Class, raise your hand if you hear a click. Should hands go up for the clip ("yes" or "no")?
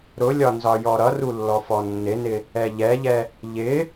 no